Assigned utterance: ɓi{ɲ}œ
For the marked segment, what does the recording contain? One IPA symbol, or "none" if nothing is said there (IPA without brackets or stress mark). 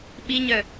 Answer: ɲ